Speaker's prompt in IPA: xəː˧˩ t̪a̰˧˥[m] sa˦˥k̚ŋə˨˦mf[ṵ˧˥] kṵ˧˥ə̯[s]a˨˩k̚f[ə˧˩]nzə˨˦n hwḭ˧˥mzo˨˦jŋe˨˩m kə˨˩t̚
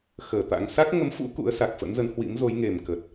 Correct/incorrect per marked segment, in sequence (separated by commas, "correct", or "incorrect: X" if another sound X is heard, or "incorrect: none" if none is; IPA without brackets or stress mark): incorrect: ŋ, correct, correct, incorrect: ə̰˧˥